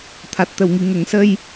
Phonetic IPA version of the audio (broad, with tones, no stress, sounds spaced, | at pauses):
t̪ʰ a˨˩ t̚ t̪ ə˨˩˨ w ŋ i˨˩˨ ŋ ə˨˩˦ ŋ s ə˧ j